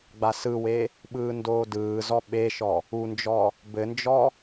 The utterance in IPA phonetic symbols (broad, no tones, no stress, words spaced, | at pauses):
ɡ͡basɯwe | ɓɯːndoːdɯːzɔ ɓeʃɔ | und͡ʒɔ | bɘnd͡ʒɔ